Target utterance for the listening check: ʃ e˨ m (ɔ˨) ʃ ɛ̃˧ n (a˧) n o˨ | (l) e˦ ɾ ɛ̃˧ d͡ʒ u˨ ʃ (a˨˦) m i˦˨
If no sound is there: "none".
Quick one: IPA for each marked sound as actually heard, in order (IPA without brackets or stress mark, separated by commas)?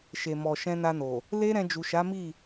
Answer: ɔ˨, a˧, l, a˨˦